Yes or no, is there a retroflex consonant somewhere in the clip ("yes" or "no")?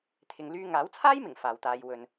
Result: no